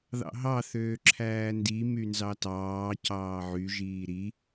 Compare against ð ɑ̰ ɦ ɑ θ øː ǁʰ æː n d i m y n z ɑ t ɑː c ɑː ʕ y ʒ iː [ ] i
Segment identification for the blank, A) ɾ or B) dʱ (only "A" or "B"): A